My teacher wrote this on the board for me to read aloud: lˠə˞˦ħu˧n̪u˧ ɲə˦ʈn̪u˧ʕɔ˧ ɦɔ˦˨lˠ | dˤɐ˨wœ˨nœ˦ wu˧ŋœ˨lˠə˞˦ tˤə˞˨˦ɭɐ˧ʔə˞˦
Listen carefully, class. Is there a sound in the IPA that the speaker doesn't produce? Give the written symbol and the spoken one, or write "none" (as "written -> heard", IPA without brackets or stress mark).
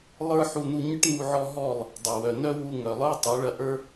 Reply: none